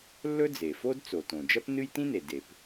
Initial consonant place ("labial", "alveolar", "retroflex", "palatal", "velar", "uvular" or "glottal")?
alveolar